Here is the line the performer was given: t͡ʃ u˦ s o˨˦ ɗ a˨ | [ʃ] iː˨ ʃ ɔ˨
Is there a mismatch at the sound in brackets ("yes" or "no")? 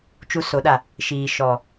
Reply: no